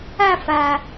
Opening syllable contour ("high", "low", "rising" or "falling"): falling